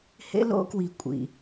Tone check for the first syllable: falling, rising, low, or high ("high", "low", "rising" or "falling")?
high